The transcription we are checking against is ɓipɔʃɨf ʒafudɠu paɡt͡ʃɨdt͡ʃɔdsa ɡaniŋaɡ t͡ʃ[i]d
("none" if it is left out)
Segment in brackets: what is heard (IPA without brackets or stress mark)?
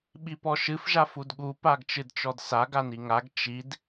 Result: i